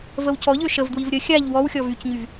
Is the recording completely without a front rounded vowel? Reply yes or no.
no